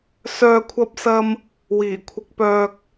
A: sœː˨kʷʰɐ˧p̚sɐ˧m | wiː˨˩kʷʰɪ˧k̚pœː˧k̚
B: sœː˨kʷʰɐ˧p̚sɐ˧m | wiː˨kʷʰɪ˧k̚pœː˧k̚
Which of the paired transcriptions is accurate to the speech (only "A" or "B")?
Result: A